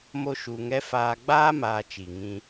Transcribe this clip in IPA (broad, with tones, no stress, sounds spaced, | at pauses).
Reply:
m o˦ ʃ u˧ ŋ ɛ˦ f aː˧ ɡ͡b aː˦ m aː˧ t͡ʃ i˨ ŋ ĩ˧